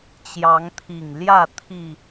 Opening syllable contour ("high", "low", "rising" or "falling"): rising